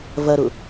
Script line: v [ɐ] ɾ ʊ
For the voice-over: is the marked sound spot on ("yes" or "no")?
yes